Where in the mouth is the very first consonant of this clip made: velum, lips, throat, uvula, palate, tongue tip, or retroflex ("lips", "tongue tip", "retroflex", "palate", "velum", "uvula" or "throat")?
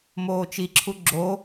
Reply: lips